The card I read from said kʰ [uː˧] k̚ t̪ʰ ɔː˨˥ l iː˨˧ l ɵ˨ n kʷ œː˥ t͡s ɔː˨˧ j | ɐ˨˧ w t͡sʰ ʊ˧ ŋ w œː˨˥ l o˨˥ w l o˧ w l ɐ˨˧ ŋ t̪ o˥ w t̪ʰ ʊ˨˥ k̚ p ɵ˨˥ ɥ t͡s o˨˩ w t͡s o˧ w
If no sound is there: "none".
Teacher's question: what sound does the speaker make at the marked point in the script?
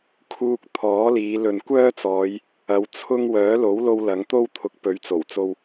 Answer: uː˧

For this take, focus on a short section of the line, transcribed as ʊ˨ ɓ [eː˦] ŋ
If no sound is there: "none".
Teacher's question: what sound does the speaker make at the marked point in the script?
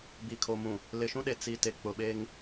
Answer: eː˦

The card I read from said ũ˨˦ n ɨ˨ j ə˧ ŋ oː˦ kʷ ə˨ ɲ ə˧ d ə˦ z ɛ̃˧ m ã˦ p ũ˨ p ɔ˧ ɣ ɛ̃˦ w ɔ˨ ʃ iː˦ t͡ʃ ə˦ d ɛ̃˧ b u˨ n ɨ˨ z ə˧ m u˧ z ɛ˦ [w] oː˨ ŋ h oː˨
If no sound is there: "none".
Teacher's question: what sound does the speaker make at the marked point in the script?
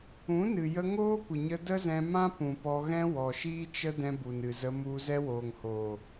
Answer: w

